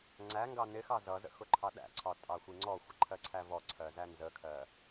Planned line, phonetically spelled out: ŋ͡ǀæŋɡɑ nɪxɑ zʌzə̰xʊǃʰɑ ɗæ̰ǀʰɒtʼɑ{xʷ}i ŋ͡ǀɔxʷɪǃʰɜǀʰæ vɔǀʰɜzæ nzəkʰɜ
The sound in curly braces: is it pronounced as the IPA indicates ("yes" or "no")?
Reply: yes